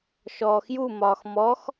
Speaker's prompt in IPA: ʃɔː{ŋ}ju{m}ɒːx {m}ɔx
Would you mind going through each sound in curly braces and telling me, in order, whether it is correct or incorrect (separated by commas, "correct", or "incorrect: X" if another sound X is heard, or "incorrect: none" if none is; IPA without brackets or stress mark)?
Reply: incorrect: x, correct, correct